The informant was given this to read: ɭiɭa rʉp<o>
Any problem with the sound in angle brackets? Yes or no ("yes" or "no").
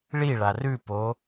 no